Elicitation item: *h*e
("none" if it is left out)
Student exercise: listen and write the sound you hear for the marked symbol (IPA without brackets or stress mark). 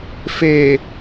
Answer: f